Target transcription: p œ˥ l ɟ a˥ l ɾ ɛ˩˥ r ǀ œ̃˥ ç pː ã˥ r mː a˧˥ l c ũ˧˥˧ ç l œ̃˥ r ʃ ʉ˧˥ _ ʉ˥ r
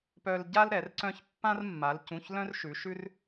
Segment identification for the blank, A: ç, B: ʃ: B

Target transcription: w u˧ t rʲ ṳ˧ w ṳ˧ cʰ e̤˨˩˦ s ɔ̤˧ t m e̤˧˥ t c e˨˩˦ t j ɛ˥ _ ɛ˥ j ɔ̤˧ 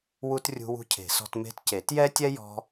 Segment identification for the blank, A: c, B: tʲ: B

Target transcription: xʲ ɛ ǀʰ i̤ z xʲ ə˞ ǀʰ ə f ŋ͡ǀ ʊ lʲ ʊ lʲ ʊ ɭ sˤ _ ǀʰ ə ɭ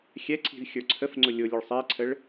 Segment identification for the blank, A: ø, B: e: B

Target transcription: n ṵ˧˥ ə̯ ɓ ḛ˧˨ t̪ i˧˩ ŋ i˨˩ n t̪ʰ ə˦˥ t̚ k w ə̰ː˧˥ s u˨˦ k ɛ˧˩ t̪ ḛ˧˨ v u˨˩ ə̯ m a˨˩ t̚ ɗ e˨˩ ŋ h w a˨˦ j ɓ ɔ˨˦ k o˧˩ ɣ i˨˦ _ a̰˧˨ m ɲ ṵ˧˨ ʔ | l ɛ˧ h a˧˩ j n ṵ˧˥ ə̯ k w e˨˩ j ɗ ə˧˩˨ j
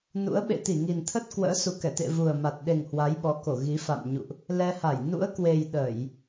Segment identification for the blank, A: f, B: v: A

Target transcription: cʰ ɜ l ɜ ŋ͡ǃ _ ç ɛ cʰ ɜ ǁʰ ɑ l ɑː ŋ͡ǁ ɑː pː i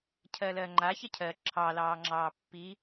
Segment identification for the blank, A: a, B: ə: A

